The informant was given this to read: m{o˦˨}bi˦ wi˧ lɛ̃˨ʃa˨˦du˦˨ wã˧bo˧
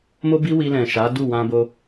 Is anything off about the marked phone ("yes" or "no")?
yes